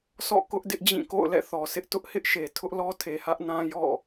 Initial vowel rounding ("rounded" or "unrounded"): rounded